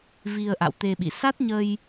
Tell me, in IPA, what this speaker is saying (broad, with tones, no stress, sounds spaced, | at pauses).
v i˧ ə̯ ʔ a̰˧˨ w t̪ e˧ ɓ ḭ˧˨ s a˦˥ t̚ ɲ ə˧ j